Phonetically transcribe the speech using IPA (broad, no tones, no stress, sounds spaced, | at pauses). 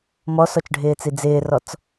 m ɔ s ɔ t͡ʃ ɖʱ ɪː t͡s i d͡z ɪː r ɔ t͡s